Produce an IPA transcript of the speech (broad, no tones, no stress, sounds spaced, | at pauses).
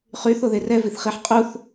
χ y θ o ð e r ɛ v i θ χ i ħ qʼ u θ